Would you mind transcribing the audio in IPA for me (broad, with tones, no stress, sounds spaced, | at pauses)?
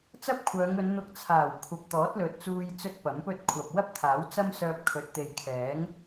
t͡s ɐ˥ p̚ kʷʰ œː˨˧ ŋ ɵ˨˧ n n̪ ʊ˧ k̚ t͡sʰ aː˨˩ w kʷʰ ɐ˨ p̚ t̪ ɔː˨˥ t̚ l ɵ˨ t̚ t͡s uː˧ j t͡s ɵ˥ t̚ p ɐ˨˥ m p ɵ˥ t̚ kʷʰ ɐ˨ p̚ w ɐ˥ p̚ t̪ʰ aː˨˥ w t͡s ɐ˥ m s œː˧ p̚ kʰ ɵ˨ t̚ t̪ e˨ j kʰ ɛː˨˥ ŋ